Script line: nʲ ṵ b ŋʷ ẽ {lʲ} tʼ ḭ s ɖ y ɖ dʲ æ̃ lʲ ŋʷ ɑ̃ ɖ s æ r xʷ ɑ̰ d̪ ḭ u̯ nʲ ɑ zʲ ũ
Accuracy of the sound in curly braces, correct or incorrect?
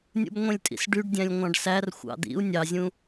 correct